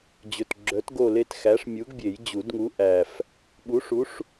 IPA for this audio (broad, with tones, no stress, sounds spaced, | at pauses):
d͡ʑ ɵ˨˩ t ɡ͡ǁ œ˨˥ t ɡ o˦˨ l e˦˨ t x æ˨˥ ʂ mʲ u˨˥ ɡ bʲ e˨˩˦ j d͡ʑ u˨˩˦ d ŋ u˨˥ ʔ æ˨˩ f | ɓ u˨˥ ʂ u˨˥ ʂ